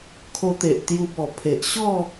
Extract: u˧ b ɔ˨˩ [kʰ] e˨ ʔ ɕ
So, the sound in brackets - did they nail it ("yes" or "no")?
no